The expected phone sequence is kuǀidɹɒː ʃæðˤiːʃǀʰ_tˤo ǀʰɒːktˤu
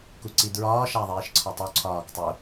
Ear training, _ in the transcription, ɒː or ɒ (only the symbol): ɒ